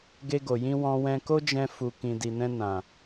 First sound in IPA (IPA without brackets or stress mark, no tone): ɡ